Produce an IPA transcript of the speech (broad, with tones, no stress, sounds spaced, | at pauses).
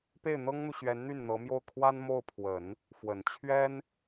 p e˥˩ ɪ̯ n̪ ɤ˥ ŋ n̪ u˨ ɕ ɥ ɛ˧˥ n n̪ y˥˩ n n̪ ɤ˧˥ m j o˥˩ ʊ̯ kʰ w a˥ n m o˥˩ ʊ̯ pʰ w ə˨˩˦ n | f w ə˨˩ n t͡ɕʰ ɥ ɛ˥ n